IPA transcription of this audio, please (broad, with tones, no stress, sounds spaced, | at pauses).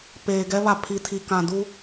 p eː˨ ɡ ɛ˦ β a˨ pʰ i˨ tʰ i˨ k ã˨ d u˦